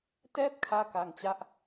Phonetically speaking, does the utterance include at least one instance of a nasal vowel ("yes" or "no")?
no